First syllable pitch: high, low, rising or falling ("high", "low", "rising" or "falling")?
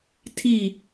falling